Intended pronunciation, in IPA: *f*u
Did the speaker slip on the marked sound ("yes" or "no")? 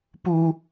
yes